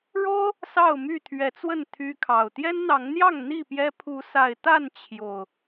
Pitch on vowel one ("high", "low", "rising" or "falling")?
high